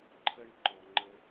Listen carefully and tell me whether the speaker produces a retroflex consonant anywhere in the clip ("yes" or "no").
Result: yes